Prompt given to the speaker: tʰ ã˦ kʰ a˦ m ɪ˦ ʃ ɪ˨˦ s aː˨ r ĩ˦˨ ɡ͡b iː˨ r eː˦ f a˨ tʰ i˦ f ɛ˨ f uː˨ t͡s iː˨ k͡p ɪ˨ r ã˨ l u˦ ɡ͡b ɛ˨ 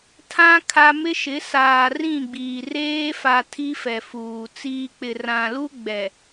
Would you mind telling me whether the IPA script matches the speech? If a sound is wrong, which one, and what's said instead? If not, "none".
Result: none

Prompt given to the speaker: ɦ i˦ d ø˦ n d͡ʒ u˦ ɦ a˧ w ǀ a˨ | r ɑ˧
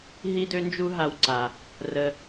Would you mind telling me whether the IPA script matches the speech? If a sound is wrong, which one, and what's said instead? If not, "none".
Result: ɑ˧ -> ə˧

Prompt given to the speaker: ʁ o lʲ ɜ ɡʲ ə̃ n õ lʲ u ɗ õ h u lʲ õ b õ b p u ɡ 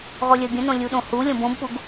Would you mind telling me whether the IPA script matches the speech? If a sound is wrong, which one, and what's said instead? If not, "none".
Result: none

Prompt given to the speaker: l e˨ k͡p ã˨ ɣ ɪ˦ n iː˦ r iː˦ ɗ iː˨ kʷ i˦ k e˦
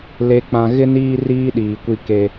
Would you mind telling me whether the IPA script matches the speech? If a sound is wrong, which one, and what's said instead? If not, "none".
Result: none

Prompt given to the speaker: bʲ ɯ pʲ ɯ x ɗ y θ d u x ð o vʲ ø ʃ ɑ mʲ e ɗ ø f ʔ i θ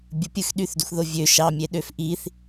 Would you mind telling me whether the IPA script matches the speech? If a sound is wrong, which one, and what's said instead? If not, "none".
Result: none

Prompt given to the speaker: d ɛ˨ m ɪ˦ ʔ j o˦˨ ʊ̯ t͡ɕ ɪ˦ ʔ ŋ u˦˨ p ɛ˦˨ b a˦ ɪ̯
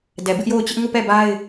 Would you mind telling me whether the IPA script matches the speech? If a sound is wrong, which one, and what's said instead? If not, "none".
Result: m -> b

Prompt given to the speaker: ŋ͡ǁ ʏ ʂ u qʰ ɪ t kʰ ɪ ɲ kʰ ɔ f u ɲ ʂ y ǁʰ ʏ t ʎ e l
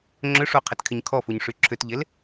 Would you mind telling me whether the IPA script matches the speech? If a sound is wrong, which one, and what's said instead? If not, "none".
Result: none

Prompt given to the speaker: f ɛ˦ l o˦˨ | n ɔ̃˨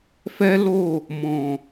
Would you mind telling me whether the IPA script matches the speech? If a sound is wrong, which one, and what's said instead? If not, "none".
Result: n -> m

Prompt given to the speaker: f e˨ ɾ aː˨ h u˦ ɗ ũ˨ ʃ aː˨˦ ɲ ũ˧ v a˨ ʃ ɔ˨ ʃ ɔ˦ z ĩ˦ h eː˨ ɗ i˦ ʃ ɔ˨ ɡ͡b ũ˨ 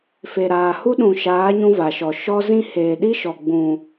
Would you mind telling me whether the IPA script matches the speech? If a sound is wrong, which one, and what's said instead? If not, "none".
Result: none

